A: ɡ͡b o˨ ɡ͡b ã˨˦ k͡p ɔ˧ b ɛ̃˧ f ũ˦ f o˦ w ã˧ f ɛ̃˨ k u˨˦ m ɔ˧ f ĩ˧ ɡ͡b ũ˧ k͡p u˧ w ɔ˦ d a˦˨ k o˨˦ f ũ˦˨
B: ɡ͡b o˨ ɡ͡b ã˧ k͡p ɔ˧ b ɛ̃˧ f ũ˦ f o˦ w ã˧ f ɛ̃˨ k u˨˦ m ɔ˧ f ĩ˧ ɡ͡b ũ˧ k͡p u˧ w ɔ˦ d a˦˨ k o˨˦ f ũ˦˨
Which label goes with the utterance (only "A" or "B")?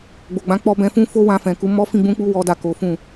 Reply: A